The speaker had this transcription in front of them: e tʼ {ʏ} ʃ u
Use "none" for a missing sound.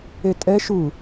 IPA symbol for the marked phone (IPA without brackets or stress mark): ɛ